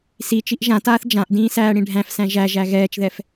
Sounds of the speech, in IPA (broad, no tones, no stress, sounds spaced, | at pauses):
s i t͡ʃ i ʔ ʒ ã t aː θ d͡ʒ ã ʔ d ĩː s æː ɽ ĩ ɖʱ æ̃ f s æ̃ ʒ æ ʒ æ ɣ ɛː t͡ʃ ð ɛ f